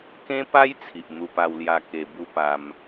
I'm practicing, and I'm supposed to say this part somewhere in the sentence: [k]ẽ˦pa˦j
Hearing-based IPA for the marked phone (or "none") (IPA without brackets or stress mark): k